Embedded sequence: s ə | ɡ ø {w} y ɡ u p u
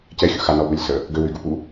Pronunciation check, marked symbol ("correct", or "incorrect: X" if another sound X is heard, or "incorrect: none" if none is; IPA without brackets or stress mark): correct